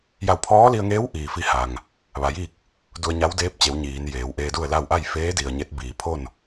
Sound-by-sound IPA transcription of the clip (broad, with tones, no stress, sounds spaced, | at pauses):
j a˧˩ w pʰ ɔː˧˥ l i˧ ə̯ ŋ eː˧˥ w ʔ iː˩ f i˧ h a˩ ŋ | ʋ a˩˧ j iː˥˨ k̚ | d u˧ ə̯ ɲ a˧˥ w d eː˧˥ p̚ t͡ɕ e˩˧ w ɲ iː˩˧ n j eː˩˧ w ʔ eː˧ d u˥˨ ə̯ l a˥˨ w ʔ a˥˨ j f eː˧˥ d i˩ ə̯ ɲ e˧˥ t̚ b iː˩ pʰ o˥˨ n